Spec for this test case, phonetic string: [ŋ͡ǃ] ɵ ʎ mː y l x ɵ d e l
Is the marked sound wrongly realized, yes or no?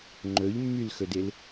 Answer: no